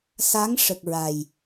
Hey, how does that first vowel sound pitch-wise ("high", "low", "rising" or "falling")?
rising